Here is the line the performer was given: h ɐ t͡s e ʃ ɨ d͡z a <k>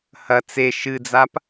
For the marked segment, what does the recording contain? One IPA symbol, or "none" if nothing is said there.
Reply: p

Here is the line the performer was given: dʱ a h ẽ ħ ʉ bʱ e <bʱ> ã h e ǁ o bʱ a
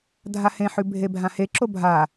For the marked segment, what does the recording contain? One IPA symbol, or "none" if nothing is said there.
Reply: bʱ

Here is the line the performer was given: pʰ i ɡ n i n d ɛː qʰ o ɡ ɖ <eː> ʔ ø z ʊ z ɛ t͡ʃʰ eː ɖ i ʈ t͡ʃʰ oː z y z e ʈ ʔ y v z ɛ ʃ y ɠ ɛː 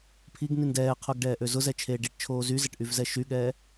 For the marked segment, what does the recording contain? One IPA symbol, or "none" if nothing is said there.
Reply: ɛː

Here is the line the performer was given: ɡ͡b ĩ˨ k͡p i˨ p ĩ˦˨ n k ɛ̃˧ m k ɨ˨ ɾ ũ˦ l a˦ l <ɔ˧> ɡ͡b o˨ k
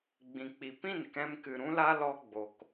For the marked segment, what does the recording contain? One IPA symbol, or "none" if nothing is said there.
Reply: ɔ˧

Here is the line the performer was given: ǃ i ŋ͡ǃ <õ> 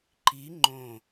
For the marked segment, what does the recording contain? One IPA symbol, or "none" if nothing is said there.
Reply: õ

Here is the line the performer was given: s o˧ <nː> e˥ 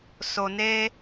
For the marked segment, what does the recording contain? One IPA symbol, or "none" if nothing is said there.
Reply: n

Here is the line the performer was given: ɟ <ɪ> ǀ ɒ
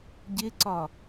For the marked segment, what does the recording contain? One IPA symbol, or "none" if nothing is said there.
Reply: ɪ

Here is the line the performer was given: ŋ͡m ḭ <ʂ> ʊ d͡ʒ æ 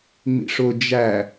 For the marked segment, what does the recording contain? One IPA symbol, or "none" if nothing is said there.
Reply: ʂ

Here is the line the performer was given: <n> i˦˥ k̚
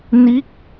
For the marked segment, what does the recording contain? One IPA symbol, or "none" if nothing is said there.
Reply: n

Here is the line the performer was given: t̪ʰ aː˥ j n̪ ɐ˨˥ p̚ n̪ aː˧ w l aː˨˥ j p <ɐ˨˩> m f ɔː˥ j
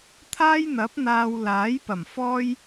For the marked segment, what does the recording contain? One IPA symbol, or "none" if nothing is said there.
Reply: ɐ˨˩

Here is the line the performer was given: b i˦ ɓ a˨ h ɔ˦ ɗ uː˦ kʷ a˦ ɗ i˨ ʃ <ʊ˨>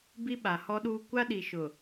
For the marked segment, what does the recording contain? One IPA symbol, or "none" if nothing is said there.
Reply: ʊ˨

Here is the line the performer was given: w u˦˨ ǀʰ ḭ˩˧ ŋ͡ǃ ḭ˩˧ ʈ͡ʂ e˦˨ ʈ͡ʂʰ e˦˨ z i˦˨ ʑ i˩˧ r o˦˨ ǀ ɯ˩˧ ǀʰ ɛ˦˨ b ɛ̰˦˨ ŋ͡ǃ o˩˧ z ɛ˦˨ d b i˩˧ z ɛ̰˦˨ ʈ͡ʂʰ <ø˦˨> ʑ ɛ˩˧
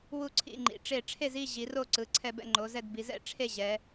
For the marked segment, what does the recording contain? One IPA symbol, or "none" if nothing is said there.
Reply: e˦˨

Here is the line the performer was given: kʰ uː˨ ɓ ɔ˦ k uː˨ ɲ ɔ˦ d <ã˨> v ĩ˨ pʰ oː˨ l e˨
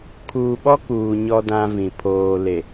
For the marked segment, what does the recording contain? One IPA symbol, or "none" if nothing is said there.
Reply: ã˦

